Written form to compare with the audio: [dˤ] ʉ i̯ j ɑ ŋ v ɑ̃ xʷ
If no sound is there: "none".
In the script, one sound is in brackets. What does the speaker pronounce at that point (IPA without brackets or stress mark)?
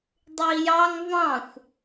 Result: dˤ